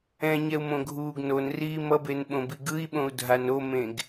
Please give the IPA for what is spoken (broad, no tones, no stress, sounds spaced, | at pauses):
ɛ̃ ɲ ɛ u̯ m õ ɡʱ uː ɡ n o n r iː m ʌ b e n ɓ õ b i ɡ ɯ i̯ ɓ õ u̯ dʱ a n o m ẽ ɡ